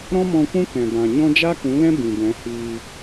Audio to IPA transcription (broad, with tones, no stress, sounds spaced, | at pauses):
ɾ ɔ̃˦ m ɔ̃˧ kʷ ũ˦ k ɛ̃˨ b ã˨ ɲ ɔ̃˦ d͡ʒ a˦ k ũ˨˦ l ɛ̃˦ b ĩ˨ b ɛ̃˨˦ h iː˧